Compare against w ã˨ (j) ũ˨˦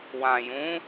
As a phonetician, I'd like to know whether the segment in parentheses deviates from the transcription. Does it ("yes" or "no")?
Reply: no